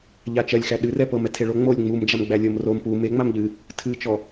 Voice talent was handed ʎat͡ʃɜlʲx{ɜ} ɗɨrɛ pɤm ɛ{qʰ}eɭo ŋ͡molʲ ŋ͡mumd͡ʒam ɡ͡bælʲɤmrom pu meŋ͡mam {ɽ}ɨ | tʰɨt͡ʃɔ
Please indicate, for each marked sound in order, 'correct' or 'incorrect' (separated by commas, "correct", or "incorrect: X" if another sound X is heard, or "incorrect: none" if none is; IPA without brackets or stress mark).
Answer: incorrect: æ, incorrect: tʰ, incorrect: ʎ